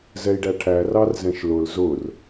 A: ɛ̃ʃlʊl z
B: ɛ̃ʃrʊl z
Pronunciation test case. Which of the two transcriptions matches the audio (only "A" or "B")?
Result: A